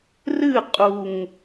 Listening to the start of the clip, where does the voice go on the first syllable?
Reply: falling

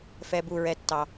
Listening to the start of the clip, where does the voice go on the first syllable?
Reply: low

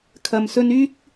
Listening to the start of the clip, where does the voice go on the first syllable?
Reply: low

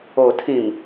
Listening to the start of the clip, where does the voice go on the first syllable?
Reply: low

